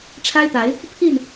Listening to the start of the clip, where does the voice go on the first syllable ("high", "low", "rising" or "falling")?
high